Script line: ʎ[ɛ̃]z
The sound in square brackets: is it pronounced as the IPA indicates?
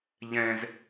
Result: yes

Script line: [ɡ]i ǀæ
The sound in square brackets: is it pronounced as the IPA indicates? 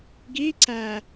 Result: yes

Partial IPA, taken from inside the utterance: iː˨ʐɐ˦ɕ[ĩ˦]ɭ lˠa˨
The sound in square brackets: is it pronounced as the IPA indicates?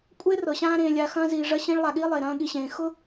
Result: yes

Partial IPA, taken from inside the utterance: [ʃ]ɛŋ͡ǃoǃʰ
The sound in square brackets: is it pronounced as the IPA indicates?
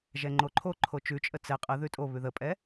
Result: no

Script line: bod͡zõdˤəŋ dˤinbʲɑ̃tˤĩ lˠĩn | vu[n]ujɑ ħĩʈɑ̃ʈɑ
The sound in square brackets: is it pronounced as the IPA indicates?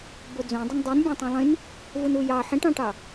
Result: yes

